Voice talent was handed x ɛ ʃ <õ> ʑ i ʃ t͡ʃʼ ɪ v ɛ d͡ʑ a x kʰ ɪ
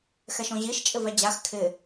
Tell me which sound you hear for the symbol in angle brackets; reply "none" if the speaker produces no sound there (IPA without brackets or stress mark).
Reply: õ